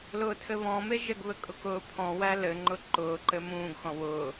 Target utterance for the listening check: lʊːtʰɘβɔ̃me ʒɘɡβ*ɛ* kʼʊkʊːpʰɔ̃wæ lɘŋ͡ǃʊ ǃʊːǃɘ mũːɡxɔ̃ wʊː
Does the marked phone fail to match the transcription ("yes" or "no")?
yes